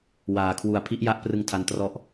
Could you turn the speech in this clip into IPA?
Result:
w aː˧ kʰ w u˧ a̯ pʰ i˦˥ ʔ j a˦˥ ʔ p r ɯ˧ ŋ tʰ a˧ n t r ɔ˦˥ ʔ

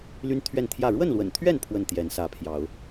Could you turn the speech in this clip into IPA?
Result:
l y˦ n t̪ʰ ɥ ɛ˥˨ n t̪ʰ j ä˥˨ ɻ w ə˥˨ n l w ə̰˨˩ n t̪ʰ ɥ ɛ˥˨ n pʰ w ə˥˨ n t̪ j ɛ˨˦ n s ä˨˦ pʰ j ɑ˨˦ ʊ̯

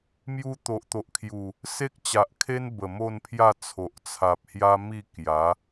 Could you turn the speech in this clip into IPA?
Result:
m j u˧ t̪ o˨ ʔ t̪ o˨ ʔ kʰ j u˨˩ | s e˦ k̚ t͡ɕ a˨ ʔ kʰ e˦ n b ə˨˩ m o˥˧ n pʰ j a˥˧ t͡sʰ o˨ ʔ t͡sʰ a˨ p̚ h j a˦ m i˥˧ k j a˨˦

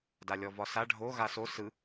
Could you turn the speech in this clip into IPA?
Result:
d a lʲ ɔ v ɒ s a ɖʱ o ɣ a s o s ɯ

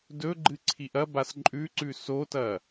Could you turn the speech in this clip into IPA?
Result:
d ɵ ɡ͡ǃ ɨ ǀʰ i ʔ ɐ b a s ǃʼ ʉ ǀ ʉ s o t ɐ

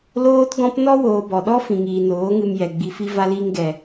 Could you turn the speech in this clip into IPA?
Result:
l oː˦ t ɡ ɔ̃˦ p n ɔ˦ w oː˨ b ɔ˨ ɗ ɔ˦ f ĩ˨ ŋ iː˨ n oː˨˦ ŋ ɨ˧ m j ɛ˨ ɡ͡b i˨ f i˧ v a˧ l iː˧ ŋ ɡ ɛ˨

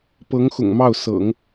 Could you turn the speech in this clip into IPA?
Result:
p ɤ˧˥ ŋ x ʊ̰˨˩ ŋ m ɑ˥˩ ʊ̯ s ɤ̰˨˩˦ ŋ

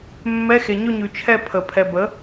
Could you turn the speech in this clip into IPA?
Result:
mː ɛ˧˥˧ x e˨ ɲ ɵ˥˧ ɲ ʉ˨˩˦ t͡ʃʰ ɛ˥˧ pʰ ə˨˩˦ pʰ ɛ˨ b ə˩˥

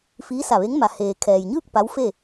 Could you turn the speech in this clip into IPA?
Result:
f iː˧˥ s a˧˩ ʋ e˧˥ ŋ m a˩ h eː˩ kʰ ɛː˩ j ɲ ɯː˥˨ k̚ p a˧˥ w f e˥˨

